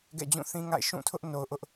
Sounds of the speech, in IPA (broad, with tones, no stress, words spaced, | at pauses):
ɡɛ̰˦˨d͡ʑũ˦˨ θĩ˦ŋa̰˦˨ɪ̯ ʃũ˦˨tʰʊ˦ʔ no˨ʊ̯ʔʊ˦ʔ